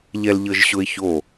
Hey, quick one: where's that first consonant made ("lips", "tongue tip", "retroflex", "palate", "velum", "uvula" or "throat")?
palate